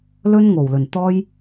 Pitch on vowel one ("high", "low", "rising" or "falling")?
high